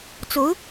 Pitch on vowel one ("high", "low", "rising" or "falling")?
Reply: rising